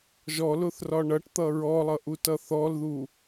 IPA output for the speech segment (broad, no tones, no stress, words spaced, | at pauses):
ʒɔlʊθrɒ ɳʌʈt̪ʌ ɹɔlˠʌʔutʌ θɔlðu